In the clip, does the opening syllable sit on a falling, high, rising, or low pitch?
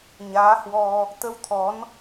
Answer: rising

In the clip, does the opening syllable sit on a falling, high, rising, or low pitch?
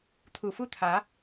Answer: low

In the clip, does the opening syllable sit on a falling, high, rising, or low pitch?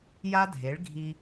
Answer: high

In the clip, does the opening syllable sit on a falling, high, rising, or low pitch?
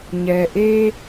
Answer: low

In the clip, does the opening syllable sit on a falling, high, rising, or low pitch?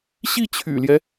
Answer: falling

